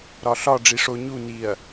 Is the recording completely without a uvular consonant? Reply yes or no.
yes